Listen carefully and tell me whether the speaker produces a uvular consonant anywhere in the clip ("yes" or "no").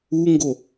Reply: no